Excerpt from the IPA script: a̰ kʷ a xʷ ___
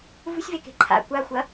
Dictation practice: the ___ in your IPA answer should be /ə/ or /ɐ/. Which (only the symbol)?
ɐ